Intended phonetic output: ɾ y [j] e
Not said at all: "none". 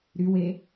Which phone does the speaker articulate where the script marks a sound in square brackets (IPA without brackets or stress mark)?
w